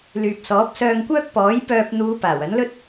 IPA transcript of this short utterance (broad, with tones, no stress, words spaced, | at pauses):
lyː˨p̚sɔː˨˥p̚sœː˧ŋkʷœː˥k̚ pɔː˨˥j pœː˧p̚ n̪uː˨˧ paː˨˩wɐ˨˥nlɵ˥t̚